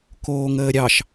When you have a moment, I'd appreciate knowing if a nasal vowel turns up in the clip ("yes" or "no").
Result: no